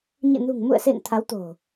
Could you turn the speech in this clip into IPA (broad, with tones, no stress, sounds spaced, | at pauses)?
ɲ ɨ̰˧˨ n ṳ˨˩ ŋ m ṵ˧˨ ə̯ s ḛ˧˨ ŋ t̪ʰ a˨˦ w t̪ o̤˨˩